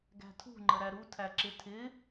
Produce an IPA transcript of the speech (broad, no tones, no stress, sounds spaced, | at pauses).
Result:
ɡ æ̤ tʰ ṳ ŋ͡ǃ ə ɾ æ ɾ u tʰ æ ǁ ɪ tʰ ɪ